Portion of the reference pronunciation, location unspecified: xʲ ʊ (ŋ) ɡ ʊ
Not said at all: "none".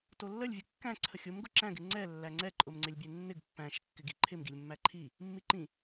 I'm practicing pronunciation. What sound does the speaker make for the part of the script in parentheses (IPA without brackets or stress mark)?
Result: m